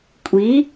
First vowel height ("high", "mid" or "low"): high